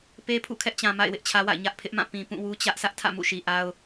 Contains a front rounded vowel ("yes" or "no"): no